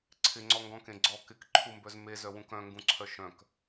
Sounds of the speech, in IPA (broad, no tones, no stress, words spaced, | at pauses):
ǀʰɪŋ͡ǀɔŋɡɔ̃kẽ ɡ͡ǀɔ kɪkǃʰumbœz mezœwũk œ̃ŋɡũǀʰœ ʃœ̃k